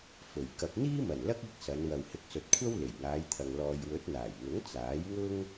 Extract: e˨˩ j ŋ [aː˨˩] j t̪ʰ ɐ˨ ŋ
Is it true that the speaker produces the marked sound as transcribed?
no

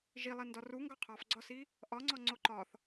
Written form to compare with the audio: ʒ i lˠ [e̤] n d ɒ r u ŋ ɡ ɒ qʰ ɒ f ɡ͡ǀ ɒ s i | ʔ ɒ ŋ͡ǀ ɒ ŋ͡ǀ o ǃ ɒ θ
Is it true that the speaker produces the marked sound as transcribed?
no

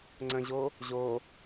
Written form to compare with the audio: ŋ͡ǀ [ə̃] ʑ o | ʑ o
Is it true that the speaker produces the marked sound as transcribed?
yes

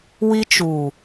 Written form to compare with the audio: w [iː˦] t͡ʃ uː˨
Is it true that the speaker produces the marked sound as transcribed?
no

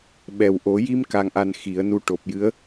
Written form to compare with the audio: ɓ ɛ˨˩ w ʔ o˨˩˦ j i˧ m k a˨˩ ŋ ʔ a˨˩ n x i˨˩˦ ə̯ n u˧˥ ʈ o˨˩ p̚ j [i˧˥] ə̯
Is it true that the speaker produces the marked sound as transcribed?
no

